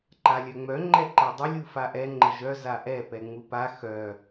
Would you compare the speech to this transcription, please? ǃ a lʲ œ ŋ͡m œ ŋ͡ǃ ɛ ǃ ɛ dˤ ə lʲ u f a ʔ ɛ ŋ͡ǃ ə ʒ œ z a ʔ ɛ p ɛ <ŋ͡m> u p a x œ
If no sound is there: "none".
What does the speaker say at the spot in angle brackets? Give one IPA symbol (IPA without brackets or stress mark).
ŋ͡m